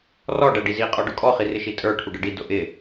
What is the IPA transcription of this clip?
rɔ ɖæɖizi qʼɔɖʊkʼɔ χirɪʃitʼə˞ ʈʰuɖəɖi dʊʔɪ

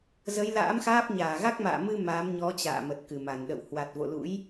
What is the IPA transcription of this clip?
zə˨˦jla̰ː˧˥mxaː˦˥p̚ ɲaː˧˩ɣa˦˥k̚ma̰ː˧˨mɨ˧ maː˨˦mɲɔ˨˦t͡ɕa̰ː˧˨ mə˨˩t̚kɨ˧˩ma˧˩nɗə̰˧˨w hwa˨˩t̚vo̰˧˨lṵ˧˥j

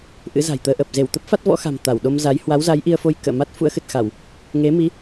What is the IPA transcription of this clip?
ʔɨ̰˧˥za̤˨˩jt̪əː˧ʔəː˨˩p̚ ze˧˩wt̪ə˦˥p̚ fa˦˥t̚vɔ̰˧˥xa̤˨˩m t̪a˧˩wɗo˧mza˨˦j hwa˨˦wza˨˦j ʔi˧ə̯fo˧j kə̰ː˧˨ma˦˥t̚ fṵ˧˥ə̯xɨ˨˩t̚xa˧˩˨w | ŋe˨˦mi˨˦

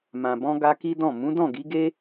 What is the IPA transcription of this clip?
mã˨bɔ̃˧ɡa˧ki˦ dɔ̃˦˨ mũ˨˦dɔ̃˦˨ɡi˨˦ɡe˦

